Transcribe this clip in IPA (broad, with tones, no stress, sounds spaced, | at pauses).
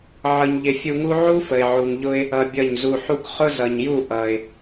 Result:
ʕ ʌ˧ ɲ ʎ ɪ˧ fʲ u˧ ŋ u˦ ʕ u˦ f ə˨ ɪ̯ ʕ u˨ ŋ ʎ ʊ˧ ɪ̯ | ʌ˧ bʲ ʌ˦˨ ɲ z u˧ ħ u˧ k χ ʊ˦ z ʌ˨ ɲ j u˦˨ ʔ ʌ˨ ɪ̯